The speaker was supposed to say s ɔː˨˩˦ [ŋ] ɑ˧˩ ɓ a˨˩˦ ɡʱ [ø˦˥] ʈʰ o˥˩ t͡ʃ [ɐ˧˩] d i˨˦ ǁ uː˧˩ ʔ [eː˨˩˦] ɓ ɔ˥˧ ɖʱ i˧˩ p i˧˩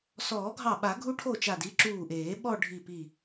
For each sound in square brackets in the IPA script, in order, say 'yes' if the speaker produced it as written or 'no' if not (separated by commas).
no, no, no, yes